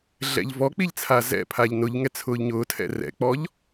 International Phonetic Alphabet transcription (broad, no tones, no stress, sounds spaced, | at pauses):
ɮ ɛ̰ ʎ v ɔ k͡p i ʎ t͡sʰ a z ɛ̰ pʰ a ʎ n ʊ ʎ ŋ ɛ t͡sʰ ʊː ʎ ɲ ʊː tʰ ɛ̰ r ɛ̰ k͡p ɔ ʎ